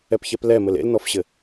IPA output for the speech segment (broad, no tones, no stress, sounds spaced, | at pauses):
ɛ p ç ɛ p l ɛ m ɘ l ḛ l n ɔ f ɕ ɘ